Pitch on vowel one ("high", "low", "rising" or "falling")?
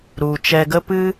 low